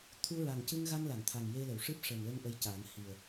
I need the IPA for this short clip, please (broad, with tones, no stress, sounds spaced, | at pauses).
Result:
t̪ʰ u˧ ɹ a˨˩ ŋ c ɨ˧ ŋ ɣ a˧ ŋ l a˨˩˨ ŋ t̪ʰ a˨˩ ŋ j e˧ l ə˨˩˨ w ʂ ɨ˦˥ p̚ ʂ əː˨˩ ŋ l ə˧ ŋ ʔ ə˧ j c aː˨˩˦ ŋ h i˨˩ ə̯